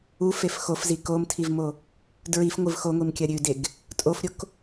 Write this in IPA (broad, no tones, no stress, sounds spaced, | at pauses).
u f e f x o f z i k o m tʰ i v m o | d ɹ i f ŋʷ ɨ v x o ŋʷ i m kʲ ɐ ɾʲ ʉ d e ɡ | tʼ o f ɾʲ o k